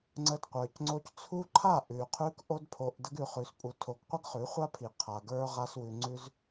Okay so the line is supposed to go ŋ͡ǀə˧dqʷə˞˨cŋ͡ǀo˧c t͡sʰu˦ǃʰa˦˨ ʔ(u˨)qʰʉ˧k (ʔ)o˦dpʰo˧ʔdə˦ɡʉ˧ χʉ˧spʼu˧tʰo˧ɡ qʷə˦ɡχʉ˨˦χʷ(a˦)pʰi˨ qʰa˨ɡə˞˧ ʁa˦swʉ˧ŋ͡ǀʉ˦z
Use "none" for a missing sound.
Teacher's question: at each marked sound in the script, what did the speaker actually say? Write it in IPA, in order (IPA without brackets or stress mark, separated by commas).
ʉ˨, ʔ, a˦